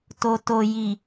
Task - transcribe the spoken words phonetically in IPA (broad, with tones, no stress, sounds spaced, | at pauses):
t o˨ t o˨ j i˨